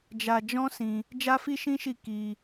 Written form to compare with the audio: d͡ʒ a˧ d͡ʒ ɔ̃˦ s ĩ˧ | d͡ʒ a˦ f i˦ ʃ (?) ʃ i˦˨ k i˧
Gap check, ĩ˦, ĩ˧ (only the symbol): ĩ˦